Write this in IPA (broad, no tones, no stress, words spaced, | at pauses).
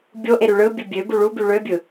bʲoʔe ɾyɭɯ bʲɯbʲø buɭu byɭøbʲɯ